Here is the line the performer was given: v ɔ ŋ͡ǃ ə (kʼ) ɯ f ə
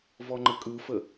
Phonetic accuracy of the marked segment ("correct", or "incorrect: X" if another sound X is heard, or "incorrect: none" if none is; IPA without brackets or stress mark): correct